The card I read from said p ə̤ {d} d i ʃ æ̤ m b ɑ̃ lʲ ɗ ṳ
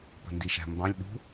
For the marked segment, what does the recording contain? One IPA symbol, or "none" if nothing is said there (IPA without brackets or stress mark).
n